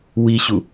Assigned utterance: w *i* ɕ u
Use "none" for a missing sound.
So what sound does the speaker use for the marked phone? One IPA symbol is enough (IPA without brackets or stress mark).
i